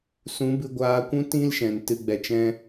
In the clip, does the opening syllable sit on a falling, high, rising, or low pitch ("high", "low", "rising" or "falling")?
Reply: rising